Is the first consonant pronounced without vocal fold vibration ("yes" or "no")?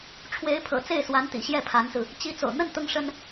yes